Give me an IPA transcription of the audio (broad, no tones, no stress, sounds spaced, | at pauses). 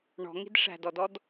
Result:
ɳ ɔ̤ ŋ i̤ d ʂ æ̤ d ɔ d ɔ d